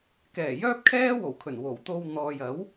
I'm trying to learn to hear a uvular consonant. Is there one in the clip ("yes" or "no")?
no